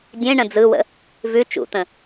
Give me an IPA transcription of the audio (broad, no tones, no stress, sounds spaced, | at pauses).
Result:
dʲ ẽ ɳ ə̃ d͡z ɯ w ə̰ | v ʉ t͡ʃ ṵ t̪ ə̃